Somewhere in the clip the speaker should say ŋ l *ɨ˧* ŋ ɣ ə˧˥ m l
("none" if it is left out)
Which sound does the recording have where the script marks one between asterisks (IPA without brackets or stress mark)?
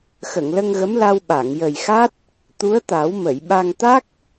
ə˧